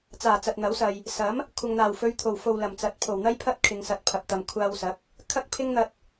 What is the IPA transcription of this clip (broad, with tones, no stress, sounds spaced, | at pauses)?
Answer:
t͡s aː˨˩ t͡s ɐ˨ t̚ n̪ ɐ˨˥ w s ɐ˨ j | s ɐ˨˥ m | kʷʰ ɐ˨ ŋ n̪ aː˨˩ w f ɵ˨˧ ɥ t̪ʰ o˨˩ w f o˨ w l ɐ˨˩ m t͡s ɐ˨˥ t̚ pʰ o˨˩ w n̪ ɐ˥ j pʰ ɐ˥ t̚ kʰ ɪ˨˧ ŋ s ɐ˨˥ t̚ pʰ ɐ˨ p̚ t̪ ɐ˨ m kʷʰ aː˧ w s ɐ˨˥ k̚ | kʰ ɐ˥ k̚ pʰ ɪ˥ ŋ n̪ ɐ˧ t̚